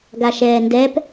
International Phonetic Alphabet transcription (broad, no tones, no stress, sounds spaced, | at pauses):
ɡ a ʃ ɛː n d ɛ p